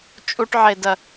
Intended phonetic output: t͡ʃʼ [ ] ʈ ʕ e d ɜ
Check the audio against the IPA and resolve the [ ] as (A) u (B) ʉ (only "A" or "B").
A